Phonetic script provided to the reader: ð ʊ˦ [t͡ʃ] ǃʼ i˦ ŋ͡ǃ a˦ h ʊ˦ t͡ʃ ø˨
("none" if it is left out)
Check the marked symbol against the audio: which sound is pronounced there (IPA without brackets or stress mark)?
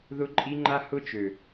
none